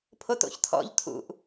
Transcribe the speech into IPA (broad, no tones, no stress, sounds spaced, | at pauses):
pʰ o t o̰ ç tʰ ɔ̰ ʎ tʰ ṵ ʔ